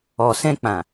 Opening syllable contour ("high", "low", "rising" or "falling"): low